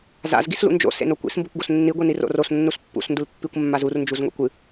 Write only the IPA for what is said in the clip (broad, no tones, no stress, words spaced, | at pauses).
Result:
za̰z ɡislṵnd͡ʒo̰ sḛnokʷḭs mbukʷɡosnːi ɡʷiniro̰ros nːuspːṵs ndulpːikʷ mːazur nd͡ʒuzŋʷḭkʷɨ